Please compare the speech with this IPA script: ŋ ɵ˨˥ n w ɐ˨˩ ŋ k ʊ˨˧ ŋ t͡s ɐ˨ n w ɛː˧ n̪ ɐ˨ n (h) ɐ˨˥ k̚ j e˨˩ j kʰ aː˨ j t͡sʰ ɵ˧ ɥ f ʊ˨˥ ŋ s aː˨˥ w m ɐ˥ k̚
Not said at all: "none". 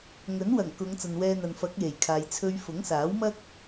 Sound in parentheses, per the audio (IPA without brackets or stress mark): f